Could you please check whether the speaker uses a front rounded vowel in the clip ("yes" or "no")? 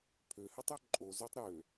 yes